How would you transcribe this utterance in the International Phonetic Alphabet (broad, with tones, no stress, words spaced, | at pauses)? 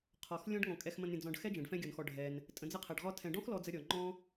qʰɔ˩x lʲɔ̃˦ɖŋɔ̃˩ kʼɛ˨xmə̃˨n ɾʲə̃˨ d͡zɔ̃˨ɖ xɛ˥ d͡ʒɛ̃˩ɖfɛ̃˦ɡʲɔ˩nxɔ˨ ɖʱɛ˩n | tʼə̃˨d͡zə˥qʰɛ˩ɖʁɔ˥ tʰɛ̃˩ɖɔ̃˥xlɔ˨d͡zə˨ ɾʲɔ˩ŋ͡ǃɔ̃˦